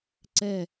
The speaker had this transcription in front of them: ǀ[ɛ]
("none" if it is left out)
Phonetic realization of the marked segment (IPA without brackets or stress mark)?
ɛ